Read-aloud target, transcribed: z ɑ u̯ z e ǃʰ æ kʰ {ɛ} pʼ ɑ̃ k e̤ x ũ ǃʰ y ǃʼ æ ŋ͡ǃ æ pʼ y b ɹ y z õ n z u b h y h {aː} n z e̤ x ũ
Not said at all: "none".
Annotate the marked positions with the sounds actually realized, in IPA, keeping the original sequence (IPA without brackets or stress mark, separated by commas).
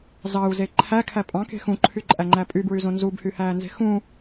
æ, æː